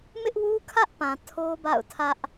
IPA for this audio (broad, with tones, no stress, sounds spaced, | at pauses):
m ɪ˦ ʔ w u˦ kʰ ä˦ ʔ p ã˨ tʰ o˦ b a̰˦˨ ʊ̯ tʰ ä˦ ʔ